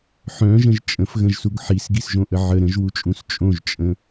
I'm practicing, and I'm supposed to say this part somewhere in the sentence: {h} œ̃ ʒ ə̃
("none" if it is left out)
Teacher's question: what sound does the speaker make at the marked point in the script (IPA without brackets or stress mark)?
ħ